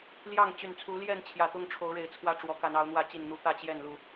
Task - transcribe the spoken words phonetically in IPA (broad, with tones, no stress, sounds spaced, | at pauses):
l j ɑ˥˨ ŋ t͡ɕ y˨˩ n t͡sʰ u˨˦ l j ɛ˥˨ n t͡ɕʰ j ä˨˩ t̪ ʊ˥˨ ŋ ʈ͡ʂʰ o˨˦ ʊ̯ ɻ e˨˩ ɪ̯ t͡sʰ w ä˦ ʈ͡ʂ w ɔ˨˦ k a˨˦ n ɑ˨˦ ʊ̯ n̪ w ä˥˨ t͡ɕ i˥˨ n n̪ u˦ t̪ ä˥˨ t͡ɕ j ɛ˥˨ n l u˥˨